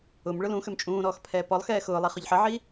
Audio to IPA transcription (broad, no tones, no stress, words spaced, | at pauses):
ʊm ɭʊlũxøm t͡ʃʼũːɾɔːx pʰɛːpɔlˠxɛː xʊːlˠi χʊʎħəʕi